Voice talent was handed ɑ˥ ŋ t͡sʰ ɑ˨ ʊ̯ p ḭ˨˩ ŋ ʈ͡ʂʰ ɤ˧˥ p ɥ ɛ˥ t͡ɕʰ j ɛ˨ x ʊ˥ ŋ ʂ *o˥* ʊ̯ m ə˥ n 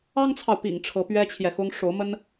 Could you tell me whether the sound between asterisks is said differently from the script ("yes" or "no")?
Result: yes